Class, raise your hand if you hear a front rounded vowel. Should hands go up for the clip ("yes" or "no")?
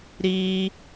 no